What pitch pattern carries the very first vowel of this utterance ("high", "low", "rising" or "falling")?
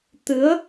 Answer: rising